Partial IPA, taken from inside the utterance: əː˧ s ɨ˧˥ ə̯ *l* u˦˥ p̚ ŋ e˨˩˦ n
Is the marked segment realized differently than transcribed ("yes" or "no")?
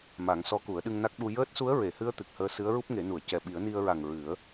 yes